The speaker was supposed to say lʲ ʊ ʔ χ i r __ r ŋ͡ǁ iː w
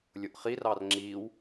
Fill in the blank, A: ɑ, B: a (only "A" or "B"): A